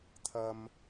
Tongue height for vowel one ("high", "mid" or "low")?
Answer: low